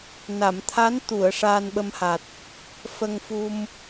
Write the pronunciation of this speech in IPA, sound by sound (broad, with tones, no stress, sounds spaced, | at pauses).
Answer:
n a˨˩˨ m t̪ʰ a˧˥ n t̪ u˨˩˨ ə̯ ʂ aː˧ n ɓ ə˧ m h a˨˩ t̚ | f ə˧ ŋ f u˧ m